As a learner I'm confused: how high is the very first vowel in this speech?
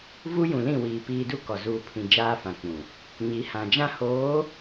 high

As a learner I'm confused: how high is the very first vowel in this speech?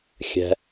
mid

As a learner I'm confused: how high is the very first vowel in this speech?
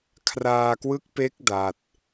low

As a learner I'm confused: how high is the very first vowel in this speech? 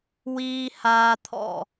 high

